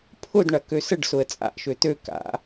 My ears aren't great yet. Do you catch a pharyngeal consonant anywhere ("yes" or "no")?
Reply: no